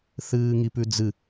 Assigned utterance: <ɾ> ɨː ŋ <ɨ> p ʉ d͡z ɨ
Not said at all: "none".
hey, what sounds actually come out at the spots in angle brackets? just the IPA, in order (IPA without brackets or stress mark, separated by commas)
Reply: θ, i